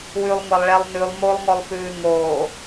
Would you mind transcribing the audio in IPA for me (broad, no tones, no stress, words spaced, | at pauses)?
wʉlˠŋʷalˠɭɛlˠ nʉlˠ molˠŋɔlˠfʉː ŋoː